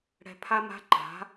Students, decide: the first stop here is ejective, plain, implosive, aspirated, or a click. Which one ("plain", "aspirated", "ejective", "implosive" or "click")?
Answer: aspirated